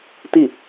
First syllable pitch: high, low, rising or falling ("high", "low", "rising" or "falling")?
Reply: falling